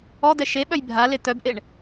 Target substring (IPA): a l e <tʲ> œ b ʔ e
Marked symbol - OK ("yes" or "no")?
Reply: no